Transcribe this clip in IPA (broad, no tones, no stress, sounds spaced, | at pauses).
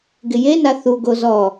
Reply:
ɡ ɪ j e n a θ u ɡ o z ɔ